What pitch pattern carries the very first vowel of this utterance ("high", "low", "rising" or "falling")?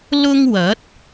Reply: high